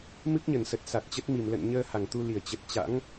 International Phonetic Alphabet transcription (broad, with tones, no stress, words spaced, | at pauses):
mɨ˦˥k̚ɲə˧˩nsə˨˩t̚ sa˨˩t̚t͡ɕə˦˥t̚ mi˧˩m lə̰˧˨n ɲəː˧ ha˧˩ŋt̪u˧li˧˩ə̯ t͡ɕə˨˩t̚t͡ɕa̰˧˥ŋ